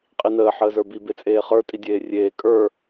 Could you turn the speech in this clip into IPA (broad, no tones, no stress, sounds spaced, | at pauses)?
qʼ i n əː ħ əː z ə˞ b i b e t͡sʼ eː χ ə˞ tʼ i dʲ eː rʲ eː kʼ ə˞